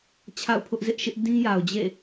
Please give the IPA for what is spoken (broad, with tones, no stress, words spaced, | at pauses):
t͡ɕʰa̰˦˨ʊ̯pʰʊ˦ʔzɪ˦ʔʃɪ˦ʔ dĩ˦ja˨ʊ̯d͡ʑḛ˦˨